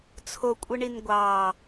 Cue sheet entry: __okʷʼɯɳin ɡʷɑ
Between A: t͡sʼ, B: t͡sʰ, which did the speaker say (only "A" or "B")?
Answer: B